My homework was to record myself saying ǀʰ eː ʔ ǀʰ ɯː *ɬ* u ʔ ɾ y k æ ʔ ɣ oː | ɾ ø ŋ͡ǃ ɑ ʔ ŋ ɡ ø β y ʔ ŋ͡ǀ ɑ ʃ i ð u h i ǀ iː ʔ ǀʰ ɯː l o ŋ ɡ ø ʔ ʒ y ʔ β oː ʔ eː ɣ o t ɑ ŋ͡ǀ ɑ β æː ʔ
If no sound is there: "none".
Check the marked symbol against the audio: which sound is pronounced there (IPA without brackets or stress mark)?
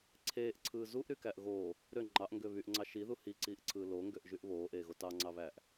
z